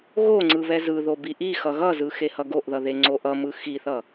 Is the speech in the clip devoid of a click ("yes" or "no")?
no